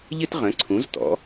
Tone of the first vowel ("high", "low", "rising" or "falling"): high